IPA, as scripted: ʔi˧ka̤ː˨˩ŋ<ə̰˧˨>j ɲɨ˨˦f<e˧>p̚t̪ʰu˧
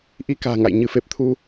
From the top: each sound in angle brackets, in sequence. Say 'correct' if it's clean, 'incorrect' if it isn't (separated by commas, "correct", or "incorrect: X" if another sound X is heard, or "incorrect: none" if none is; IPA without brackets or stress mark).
incorrect: a̰˧˨, incorrect: e˨˩